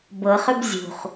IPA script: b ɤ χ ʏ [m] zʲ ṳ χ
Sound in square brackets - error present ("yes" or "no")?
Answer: yes